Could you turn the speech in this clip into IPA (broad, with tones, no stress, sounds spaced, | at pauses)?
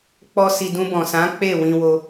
k͡p ɔ˦ s i˧ d ũ˧ b ɔ̃˨ s ã˨˦ k͡p e˦˨ w ĩ˧ w o˧